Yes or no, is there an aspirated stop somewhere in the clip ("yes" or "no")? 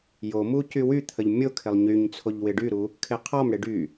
yes